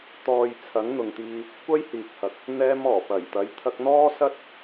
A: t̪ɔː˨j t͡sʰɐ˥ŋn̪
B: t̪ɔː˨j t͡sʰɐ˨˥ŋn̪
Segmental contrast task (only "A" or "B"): B